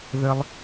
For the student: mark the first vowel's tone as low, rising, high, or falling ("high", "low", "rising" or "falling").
high